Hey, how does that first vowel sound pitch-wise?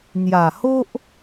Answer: low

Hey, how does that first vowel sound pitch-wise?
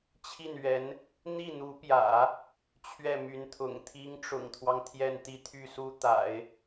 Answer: falling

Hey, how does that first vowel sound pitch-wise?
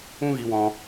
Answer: high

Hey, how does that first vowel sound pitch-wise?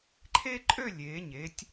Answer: high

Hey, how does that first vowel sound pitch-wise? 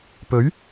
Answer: rising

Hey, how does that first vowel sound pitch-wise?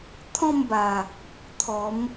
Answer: falling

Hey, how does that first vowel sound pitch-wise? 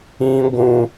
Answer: high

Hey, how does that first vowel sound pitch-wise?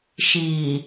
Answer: low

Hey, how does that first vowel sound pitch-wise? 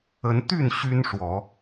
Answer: rising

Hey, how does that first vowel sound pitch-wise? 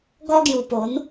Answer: high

